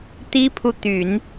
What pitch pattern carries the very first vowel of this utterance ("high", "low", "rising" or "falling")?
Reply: high